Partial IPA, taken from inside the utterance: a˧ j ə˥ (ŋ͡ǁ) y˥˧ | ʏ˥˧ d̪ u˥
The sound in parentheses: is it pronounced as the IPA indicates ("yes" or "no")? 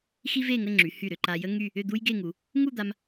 no